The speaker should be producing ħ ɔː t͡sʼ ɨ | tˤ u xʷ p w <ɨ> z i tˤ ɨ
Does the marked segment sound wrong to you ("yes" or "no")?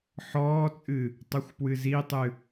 no